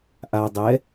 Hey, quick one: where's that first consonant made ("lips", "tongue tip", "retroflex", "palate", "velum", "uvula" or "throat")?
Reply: throat